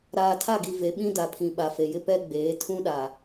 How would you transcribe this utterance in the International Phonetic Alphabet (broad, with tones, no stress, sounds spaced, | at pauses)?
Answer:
ɾ aː˨ tʰ a˦˨ ɡ i˨ v e˨˦ ɓ ĩ˦ d a˨ pʰ ĩ˨ ɓ a˨ f e˨ j ɪ˦ p ɛ˦ ɡ͡b eː˨˦ tʰ ũ˦ ɗ a˨